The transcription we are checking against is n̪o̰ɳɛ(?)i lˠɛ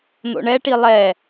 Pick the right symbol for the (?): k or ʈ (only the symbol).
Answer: ʈ